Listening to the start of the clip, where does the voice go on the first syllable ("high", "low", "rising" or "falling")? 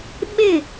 falling